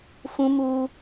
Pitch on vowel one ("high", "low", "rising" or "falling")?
high